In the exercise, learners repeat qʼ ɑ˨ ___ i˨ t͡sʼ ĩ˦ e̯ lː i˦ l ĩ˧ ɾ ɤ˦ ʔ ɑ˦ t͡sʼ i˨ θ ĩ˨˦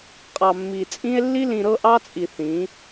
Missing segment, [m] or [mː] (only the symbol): mː